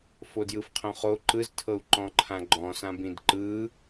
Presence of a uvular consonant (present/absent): present